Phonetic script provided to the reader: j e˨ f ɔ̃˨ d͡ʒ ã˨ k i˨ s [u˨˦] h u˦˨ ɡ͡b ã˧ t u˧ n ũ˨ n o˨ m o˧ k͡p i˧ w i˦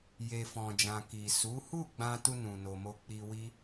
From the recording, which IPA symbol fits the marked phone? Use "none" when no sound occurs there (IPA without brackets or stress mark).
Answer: u˨˦